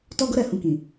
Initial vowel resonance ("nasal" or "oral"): oral